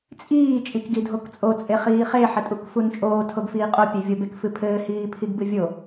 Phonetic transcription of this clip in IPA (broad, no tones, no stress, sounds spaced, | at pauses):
t͡sʼ iː t͡ʃʼ i k ɡ i dʱ o k t͡sʼ o t͡sʼ e χ iː χ e ħ ɘ tʼ u k f u n t͡ʃʼ oː tʰ o ɡ f iː qʼ o pʲ e vʲ o b e k f ɨ pʰ ɘː h iː pʰ i ɡ b ɨ vʲ o